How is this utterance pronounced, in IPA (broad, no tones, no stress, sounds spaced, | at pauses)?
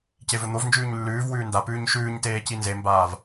c e v ɵ n̪ o v n d͡ʒ ʉː ɲ lː ʉː v w ʉː n d a p ʉː ɲ ʃ ʉː ɲ t eː c i n z e m b aː v